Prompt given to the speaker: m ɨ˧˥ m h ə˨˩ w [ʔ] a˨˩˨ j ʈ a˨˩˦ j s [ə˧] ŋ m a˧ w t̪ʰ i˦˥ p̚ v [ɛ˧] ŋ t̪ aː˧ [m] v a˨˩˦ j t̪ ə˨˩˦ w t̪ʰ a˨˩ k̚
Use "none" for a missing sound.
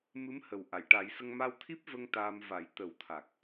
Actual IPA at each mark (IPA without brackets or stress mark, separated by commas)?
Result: ʔ, ə˧, ə˧, m